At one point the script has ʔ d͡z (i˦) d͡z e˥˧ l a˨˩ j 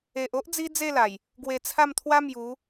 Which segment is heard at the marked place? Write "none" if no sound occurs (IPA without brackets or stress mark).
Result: i˦